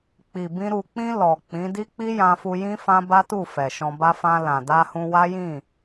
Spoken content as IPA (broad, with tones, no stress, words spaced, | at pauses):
k͡pi˨bĩ˧ ɾu˨k͡pĩ˧ lɔ˨k͡pĩ˨˦ di˦k͡pi˦jã˧fu˧ jĩ˦fã˦ ba˦tu˦˨ fɛ˨ʃɔ̃˧ba˦ fã˧ lã˨da˧hũ˧ wa˦jĩ˦˨